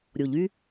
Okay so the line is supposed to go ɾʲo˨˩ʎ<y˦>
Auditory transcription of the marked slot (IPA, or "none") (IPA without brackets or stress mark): y˦